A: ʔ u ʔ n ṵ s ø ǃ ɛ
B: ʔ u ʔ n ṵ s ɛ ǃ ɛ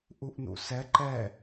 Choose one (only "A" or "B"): B